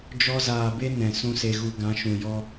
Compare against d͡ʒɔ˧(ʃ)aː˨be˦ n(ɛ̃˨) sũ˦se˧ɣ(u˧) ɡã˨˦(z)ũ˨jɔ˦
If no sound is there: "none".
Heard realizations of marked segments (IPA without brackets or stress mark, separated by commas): z, ɛ̃˨, u˧, ʃ